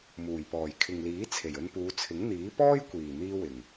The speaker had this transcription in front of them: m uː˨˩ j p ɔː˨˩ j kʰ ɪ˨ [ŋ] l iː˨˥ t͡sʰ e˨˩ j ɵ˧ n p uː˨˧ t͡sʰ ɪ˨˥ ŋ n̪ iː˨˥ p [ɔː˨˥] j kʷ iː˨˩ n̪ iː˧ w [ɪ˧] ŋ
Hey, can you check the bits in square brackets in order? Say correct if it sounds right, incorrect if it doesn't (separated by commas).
correct, incorrect, incorrect